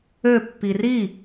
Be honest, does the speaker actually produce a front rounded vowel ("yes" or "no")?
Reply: yes